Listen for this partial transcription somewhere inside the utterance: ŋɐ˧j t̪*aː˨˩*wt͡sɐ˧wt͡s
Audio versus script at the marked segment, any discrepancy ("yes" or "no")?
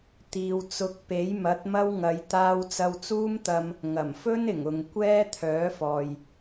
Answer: yes